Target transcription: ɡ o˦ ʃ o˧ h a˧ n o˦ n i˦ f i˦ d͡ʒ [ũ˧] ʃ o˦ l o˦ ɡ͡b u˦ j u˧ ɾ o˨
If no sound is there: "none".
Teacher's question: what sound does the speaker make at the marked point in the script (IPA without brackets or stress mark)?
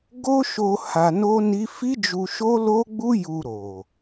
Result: u˧